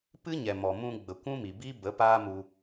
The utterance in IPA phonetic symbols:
p ɨ˦ ɲ ɛ˨ m ɔ˨ m ũ˧ ɡ͡b ə˨ kʷ ũ˦ m i˨ b i˦ b ə˨˦ p aː˦ m u˧

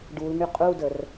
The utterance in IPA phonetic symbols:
ɖ u l ŋ y qʼ u d ə r

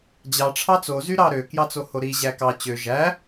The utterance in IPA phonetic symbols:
d͡ʑ ɑ ʈ͡ʂʰ ɑ t͡s o z y ɾ ɑ ɾ ø k j ɑ t͡s o h o ɾ i ʑ æ k ɑ t͡ɕ ø ʒ æ

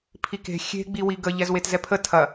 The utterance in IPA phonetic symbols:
pʰ i k e̤ xʲ e̤ ɡ͡b i w i ɡ ə ʎ ɛ z w e t z ɛ pʰ ə tʰ ɐ

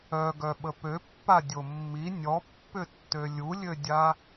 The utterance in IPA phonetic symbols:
œ ɡ œ ɓ ə p ø pː a dʲ o mː i nʲ ɔ pː ʏ tː ø lʲ u lʲ ø dʲ a

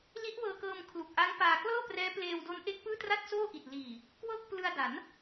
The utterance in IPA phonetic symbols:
l i˦˥ ʔ w ɤː˧ k ɤː˧ m kʰ l u˨˩ k̚ ʔ a˦˥ ŋ p aː˧ k l ɤː˥˩ p r ɛː˦˥ p l eː˧ w d o˦˥ n ʔ e˦˥ k̚ p ɯː˥˩ t r a˥˩ t̚ s oː˥˩ ʔ i˨˩ t̚ l iː˨˩ | k w ɤː˥˩ k̚ p l ɯ˧ a̯ d a˩˦ n

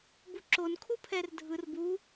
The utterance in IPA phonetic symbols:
b u ǁ o n kʰ u pʰ ɛ r dʱ ɯ r b u

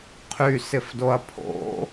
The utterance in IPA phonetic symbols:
qʰ y s ɪ f d o ɐ̯ pʰ o̰

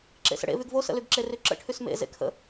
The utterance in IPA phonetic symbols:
ǁ ḛ s ə̰ ɽ ḛ v y ɡ v o s ə̰ l y ɡ ǁ e r y ǁ ə̰ ʈʰ y s m ḛ z ḛ kʰ ə̰

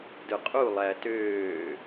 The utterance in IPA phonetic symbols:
d ɯ qʼ u lˠ æ t øː

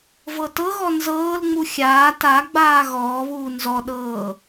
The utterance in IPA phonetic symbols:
v ɤ t ɤ ɣ ɔ n z ɤː l ŋ͡m u xʲ aː t a ɡ͡b aː ɣ ɔː β uː n z ɔ ɗ ɤː

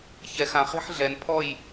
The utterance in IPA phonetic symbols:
ç ɛ˨ x ã˨ χ e̤˦ ħ ɮ ɛ˨ n pʰ ɔ˦˨ j

